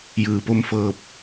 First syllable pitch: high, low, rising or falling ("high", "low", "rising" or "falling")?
low